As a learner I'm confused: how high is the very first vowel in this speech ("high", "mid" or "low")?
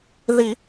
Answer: high